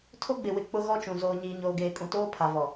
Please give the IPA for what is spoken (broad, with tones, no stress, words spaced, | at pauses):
tʰo˦ ɡ͡bɪ˨wɪ˨k͡pʊ˦ ɣɔ˦t͡ʃũ˨ zoː˨ɲiː˨ɲoː˨ɡeː˨ kʼũ˨toː˦pʰa˨vɔ˨